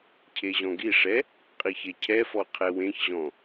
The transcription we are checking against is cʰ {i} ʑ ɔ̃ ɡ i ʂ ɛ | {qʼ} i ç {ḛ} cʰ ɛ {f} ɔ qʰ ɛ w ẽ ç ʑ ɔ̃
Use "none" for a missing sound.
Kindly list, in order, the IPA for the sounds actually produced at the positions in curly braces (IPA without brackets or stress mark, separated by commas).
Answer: e, qʼ, e, f